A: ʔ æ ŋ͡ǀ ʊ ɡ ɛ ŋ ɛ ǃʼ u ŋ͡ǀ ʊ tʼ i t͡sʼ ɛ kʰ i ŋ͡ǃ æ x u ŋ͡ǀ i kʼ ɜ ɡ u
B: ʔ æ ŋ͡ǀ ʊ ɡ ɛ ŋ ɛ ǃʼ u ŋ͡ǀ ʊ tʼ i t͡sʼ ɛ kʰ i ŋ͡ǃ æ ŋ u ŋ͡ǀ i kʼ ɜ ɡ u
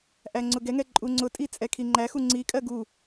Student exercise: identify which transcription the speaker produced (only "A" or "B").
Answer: A